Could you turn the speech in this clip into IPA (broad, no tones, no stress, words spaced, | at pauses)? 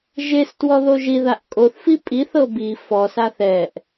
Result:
ʒestwɔ ðoʒiðaʔ kʼoθfi pʼiθɤ bi fɔsa θɛʔ